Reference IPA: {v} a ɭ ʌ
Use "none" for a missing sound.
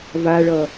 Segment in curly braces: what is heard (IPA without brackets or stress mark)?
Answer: v